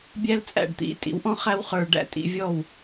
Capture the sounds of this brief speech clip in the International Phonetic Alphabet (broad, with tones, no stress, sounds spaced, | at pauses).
bʲ æ˥ l t͡sʼ æ̰˥˩ ɖ t̪ ḭ˧ tʼ ḭ˩˥ w ʔ ɔ̃˥ χ æ˥ w χ ə˞˧ ɖ æ̰˥˩ tʼ ḭ˧ vʲ ɔ˥˩ w